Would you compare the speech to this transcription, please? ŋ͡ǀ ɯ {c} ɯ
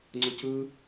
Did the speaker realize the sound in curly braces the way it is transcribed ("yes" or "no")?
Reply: yes